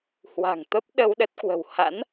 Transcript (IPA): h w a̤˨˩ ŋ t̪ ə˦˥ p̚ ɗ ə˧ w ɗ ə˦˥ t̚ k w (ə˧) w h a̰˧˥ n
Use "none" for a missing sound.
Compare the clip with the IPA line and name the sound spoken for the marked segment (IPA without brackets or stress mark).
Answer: ə̤˨˩